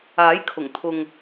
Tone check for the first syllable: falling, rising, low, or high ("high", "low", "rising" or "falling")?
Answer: rising